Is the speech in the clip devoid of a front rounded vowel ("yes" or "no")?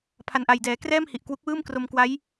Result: yes